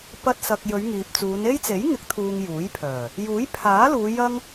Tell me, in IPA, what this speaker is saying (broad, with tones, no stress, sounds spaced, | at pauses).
p ɐ˧ t̚ s ɐ˨ k̚ j ɵ˨˧ ɥ ŋ iː˨ p̚ t͡s uː˨˧ n e˥ j t͡s e˨˥ j ŋ ɪ˨˥ k̚ t̪ʰ uː˨ ŋ j uː˨˥ j pʰ œː˨˩ | j uː˨˥ j pʰ aː˨˥ l uː˨˧ j ɐ˥ ŋ